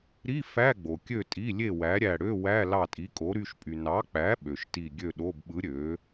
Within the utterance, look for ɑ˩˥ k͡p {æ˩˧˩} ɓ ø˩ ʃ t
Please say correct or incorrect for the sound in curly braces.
incorrect